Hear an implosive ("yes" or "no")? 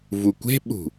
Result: yes